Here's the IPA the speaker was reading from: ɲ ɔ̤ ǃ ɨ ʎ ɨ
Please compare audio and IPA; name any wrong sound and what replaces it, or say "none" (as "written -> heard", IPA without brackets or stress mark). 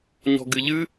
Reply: ǃ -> ɡ